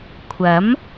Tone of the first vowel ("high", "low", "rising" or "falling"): rising